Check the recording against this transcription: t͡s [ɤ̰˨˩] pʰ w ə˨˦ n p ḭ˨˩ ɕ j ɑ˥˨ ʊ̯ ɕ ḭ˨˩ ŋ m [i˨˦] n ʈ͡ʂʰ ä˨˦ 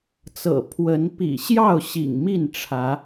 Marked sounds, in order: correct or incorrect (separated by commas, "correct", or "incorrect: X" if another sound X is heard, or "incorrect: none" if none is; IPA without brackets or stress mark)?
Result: correct, incorrect: i˥˨